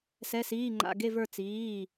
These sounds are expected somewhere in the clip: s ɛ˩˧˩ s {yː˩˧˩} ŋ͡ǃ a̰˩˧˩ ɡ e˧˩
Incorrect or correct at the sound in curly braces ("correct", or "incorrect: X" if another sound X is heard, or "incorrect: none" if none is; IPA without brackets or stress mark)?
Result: incorrect: iː˩˧˩